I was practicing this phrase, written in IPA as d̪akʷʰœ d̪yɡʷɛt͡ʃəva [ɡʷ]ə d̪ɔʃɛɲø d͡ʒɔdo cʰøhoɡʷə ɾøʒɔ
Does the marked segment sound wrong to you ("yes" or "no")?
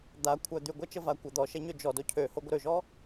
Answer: yes